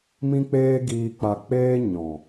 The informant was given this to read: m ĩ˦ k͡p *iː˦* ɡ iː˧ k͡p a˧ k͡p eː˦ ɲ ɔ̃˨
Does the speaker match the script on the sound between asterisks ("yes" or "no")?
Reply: no